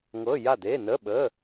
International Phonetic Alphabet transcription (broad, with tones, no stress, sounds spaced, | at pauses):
ŋ ɤ˧˥˧ j a˥˨ d e˧˥˧ n ə˧˥˧ ɓ ə˧˥˧